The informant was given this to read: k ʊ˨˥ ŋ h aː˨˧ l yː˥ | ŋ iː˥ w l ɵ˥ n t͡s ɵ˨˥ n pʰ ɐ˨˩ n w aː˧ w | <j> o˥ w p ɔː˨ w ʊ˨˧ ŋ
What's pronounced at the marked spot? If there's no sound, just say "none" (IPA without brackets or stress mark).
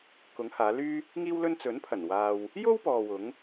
j